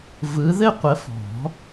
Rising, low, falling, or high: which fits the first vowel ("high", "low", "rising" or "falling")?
rising